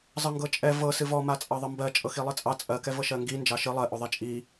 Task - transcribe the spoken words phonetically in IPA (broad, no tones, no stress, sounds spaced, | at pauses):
zˤ ɤ ŋ ɡ ɤ t͡ʃʼ ɛ v ɤ s ɨ v ɔ m a t͡sʼ ɑ ðˤ ɤ m b ɜ t͡ʃʼ ɤ x i lˠ ɨ t͡sʼ ɑ t͡sʼ ɜ k ɛ v ɤ ʃ ɜ ŋ ɡ i n d͡ʒ ɑ ʃ ɨ lˠ ɜ ʔ o ðˤ ɛ t͡ʃʼ i